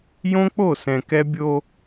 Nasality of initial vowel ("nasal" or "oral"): nasal